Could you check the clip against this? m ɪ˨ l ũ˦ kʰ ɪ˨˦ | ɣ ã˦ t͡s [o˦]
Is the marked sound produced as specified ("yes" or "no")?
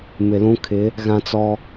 no